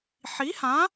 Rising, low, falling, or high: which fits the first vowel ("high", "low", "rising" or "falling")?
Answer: rising